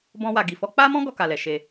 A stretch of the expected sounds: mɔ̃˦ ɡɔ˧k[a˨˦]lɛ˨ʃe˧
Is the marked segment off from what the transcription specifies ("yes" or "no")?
yes